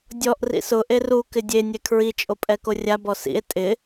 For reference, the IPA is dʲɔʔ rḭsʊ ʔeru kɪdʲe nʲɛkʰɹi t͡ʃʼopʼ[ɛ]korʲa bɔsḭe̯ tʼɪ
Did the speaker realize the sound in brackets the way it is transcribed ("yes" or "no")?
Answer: yes